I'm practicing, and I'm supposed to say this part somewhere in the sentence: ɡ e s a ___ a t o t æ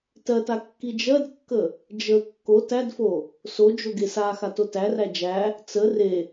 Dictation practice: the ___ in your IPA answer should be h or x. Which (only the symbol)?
x